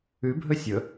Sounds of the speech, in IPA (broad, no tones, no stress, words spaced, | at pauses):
ʉbʱɵ sʲɵ